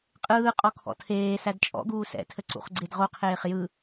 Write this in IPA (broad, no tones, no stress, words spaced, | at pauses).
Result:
qʼɯːqʼɔ kʰɔ̰tʰeːsæd t͡ʃʼɔ̰ɡuː sɛ̰tʰə ǀṵχɡ͡ǀedʁoqʰeːχ jɯ